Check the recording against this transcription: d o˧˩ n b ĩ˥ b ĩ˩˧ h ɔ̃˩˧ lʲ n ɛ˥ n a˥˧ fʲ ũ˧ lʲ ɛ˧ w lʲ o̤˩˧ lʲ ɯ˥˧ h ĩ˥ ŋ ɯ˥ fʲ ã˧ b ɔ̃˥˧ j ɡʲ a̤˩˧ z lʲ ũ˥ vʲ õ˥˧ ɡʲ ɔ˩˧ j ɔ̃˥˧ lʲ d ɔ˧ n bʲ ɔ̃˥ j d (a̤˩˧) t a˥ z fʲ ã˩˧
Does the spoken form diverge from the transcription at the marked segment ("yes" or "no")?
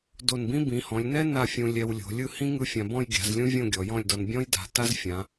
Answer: no